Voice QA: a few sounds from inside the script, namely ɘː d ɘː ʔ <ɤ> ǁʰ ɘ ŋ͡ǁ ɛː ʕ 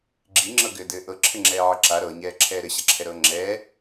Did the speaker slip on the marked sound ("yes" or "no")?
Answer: no